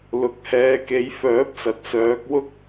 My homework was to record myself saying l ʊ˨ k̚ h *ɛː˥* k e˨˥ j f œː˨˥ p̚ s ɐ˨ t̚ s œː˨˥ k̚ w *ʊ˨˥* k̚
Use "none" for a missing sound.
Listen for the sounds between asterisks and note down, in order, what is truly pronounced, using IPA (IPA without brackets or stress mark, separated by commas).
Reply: ɛː˨˧, ʊ˥